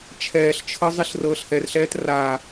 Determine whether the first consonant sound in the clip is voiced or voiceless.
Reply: voiceless